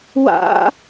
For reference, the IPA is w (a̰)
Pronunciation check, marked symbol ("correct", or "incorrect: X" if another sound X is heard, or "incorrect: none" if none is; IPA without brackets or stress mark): correct